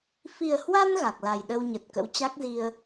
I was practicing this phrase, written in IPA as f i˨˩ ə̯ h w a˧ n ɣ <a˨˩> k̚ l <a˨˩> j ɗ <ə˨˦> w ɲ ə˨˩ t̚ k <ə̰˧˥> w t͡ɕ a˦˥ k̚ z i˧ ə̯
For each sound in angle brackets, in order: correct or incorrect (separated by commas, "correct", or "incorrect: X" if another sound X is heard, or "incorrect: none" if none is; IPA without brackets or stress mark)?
correct, correct, incorrect: ə˧, correct